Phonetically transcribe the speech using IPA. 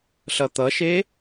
ɬ ʌ t̪ ʌ ʃ e

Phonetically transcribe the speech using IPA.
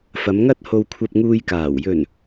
f ɐ˨˧ m ŋ ɐ˥ t̚ h o˧ w kʷʰ ɐ˧ p̚ ŋ uː˧ j k aː˨˩ w j ɵ˨˩ n

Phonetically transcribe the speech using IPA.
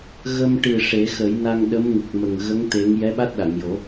ɣ ə˧ m ʈ ɨ˨˩ ʂ e˨˩˦ x ə˨˩˦ j n a˧ ŋ ɗ ə˧˥ m ŋ ɨ˨˩ k̚ m ə˨˩ ŋ ɣ ə˧˥ ŋ t̪ e˧˥ ŋ j ɛ˧˥ ɓ a˦˥ t̚ ɗ a˨˩˨ ŋ j o˨˩˦

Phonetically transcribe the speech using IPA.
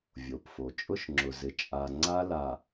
vʲ o˨ p f o˨ t͡ʃʼ ʊ˦ ʃ ŋ͡ǁ ʊ˨ z ɪ˨ t͡ʃʼ a˨ ŋ͡ǀ a˦ l a˨

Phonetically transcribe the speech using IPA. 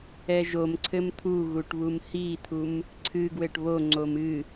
ɛ ʒ o m ǀʰ ɘ m t̪ʰ u ɣ u ʈ β u m h i t̪ʰ u m | ǀʰ ɨ ɡ w ɘ ʈ β o ŋ͡ǀ o m ɨ

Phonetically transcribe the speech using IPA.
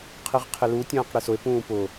qʰ i ʁ qʰ ɪ l u tʲ ɐ̃ː q ɽ e s ʊ e̯ p ũː p ʊ

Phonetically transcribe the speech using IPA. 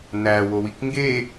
n æ w o w i k ŋ ɡ e

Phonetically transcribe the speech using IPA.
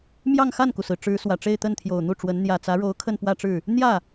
m j ɑ˥˧ ŋ x a˥˩ n k u˩ s ɹ̩˩ ʈ͡ʂ ɻ̩˧˥ s w ä˨˩ ʈ͡ʂ e˥˧ ɪ̯ t̪ ə˥˩ n t̪ʰ j o˨˩ ʊ̯ n̪ u˥˩ ʈ͡ʂ w ə˧˥ n n̪ j ä˨˩ t͡s ä˧˥ ɻ o˧˥ ʊ̯ kʰ ə˥˧ n p w ä˥˧ ʈ͡ʂ ɻ̩˥˩ | n̪ j ä˥˩

